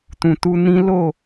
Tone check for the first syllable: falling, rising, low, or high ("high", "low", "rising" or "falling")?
low